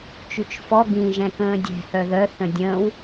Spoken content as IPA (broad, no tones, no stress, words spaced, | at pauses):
t͡ʃyt͡ʃfɔ ɡĩ ʒɛ̃kə̃ːdʲɛ̤ hœðœ θə̃dʲə̃ːw